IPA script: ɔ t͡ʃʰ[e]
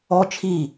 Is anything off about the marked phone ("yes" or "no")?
yes